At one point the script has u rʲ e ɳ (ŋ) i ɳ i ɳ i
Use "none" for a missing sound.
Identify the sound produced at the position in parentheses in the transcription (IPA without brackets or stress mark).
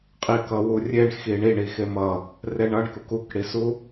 x